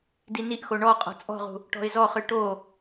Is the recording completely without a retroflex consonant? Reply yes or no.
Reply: no